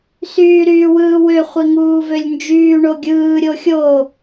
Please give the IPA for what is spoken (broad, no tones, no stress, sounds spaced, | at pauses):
s yː ɾ yː w ɯː w ø χʷ i ŋ uː v ø lʲ n d͡ʒ yː ɳ o ɡʲ ɯː ɾʲ o xʲ o